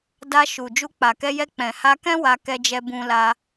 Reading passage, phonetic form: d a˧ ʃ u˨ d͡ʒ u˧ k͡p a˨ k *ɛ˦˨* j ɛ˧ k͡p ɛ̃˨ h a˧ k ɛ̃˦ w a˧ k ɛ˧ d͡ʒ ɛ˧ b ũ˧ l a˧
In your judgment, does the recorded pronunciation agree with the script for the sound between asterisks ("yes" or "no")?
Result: no